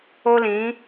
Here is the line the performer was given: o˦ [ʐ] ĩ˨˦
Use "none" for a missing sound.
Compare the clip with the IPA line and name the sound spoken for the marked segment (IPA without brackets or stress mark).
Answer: l